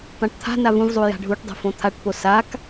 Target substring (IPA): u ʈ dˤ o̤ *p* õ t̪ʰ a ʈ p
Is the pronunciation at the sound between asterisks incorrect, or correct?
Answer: incorrect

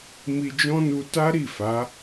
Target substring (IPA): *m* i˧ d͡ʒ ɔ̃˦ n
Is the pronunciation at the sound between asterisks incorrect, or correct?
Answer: correct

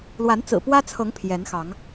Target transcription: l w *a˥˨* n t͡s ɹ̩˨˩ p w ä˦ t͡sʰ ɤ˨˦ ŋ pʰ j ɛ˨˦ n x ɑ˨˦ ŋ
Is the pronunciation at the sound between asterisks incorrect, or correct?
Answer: incorrect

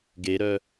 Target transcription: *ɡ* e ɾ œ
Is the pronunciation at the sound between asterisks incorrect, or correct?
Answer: correct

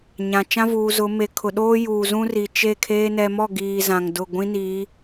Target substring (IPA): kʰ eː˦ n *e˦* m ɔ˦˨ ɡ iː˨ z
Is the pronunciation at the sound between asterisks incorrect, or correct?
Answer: incorrect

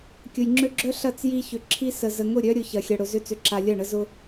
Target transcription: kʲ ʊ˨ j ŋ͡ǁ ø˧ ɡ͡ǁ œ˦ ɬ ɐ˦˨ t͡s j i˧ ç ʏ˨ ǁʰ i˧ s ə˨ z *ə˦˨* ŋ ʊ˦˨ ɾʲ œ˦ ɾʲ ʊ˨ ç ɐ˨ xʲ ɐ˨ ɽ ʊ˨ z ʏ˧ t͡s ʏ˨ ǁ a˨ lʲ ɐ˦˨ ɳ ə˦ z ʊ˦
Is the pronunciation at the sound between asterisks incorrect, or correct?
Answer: incorrect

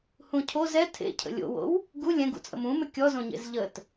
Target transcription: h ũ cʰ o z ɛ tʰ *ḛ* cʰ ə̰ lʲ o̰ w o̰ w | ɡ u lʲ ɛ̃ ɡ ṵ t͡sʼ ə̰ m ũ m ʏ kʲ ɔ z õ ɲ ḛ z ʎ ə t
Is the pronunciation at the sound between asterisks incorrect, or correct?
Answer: correct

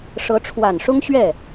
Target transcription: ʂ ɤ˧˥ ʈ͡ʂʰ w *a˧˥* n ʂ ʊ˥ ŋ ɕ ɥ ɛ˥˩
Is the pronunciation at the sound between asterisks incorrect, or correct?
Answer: incorrect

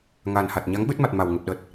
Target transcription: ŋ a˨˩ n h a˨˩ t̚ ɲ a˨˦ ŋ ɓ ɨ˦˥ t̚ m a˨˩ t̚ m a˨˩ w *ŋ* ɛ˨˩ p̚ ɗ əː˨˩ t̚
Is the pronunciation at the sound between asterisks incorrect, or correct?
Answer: correct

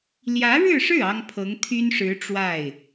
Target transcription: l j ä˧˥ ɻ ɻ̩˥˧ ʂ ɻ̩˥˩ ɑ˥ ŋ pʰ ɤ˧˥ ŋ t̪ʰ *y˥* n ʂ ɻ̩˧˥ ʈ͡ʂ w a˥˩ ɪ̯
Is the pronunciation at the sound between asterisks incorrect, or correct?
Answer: correct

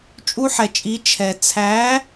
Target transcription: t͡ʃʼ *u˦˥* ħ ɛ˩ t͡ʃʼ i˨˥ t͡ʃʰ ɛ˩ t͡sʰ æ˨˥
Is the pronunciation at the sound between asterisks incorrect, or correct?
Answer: correct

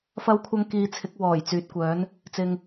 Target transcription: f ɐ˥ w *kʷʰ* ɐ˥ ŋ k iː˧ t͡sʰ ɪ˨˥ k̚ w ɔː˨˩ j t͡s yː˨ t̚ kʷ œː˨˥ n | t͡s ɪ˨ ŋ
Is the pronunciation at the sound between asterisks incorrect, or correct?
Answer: correct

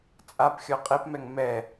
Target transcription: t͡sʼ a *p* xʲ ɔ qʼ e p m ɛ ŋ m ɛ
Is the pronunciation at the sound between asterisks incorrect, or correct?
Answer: correct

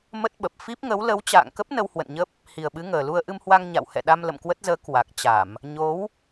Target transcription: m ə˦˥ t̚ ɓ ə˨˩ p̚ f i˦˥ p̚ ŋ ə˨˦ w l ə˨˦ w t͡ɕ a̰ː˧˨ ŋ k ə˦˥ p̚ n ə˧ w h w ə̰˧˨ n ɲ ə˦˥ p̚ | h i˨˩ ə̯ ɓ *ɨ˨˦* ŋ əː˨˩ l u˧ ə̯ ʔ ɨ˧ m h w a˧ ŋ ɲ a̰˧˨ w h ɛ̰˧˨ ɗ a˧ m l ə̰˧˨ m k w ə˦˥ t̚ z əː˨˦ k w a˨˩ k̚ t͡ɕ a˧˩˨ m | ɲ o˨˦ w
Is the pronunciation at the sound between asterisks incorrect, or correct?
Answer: correct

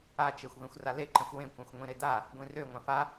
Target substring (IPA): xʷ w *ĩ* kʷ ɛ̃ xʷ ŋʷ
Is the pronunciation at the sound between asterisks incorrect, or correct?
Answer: incorrect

